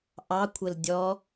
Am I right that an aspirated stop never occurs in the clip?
no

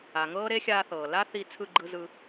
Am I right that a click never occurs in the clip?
no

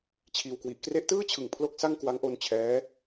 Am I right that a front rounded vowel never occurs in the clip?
yes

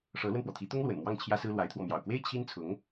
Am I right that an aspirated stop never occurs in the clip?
no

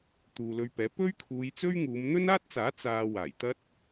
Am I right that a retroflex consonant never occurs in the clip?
yes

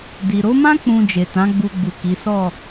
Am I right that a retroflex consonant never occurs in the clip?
yes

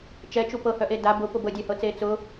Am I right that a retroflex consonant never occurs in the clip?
yes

